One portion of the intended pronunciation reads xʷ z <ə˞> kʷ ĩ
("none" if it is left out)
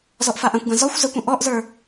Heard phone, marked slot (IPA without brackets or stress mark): ə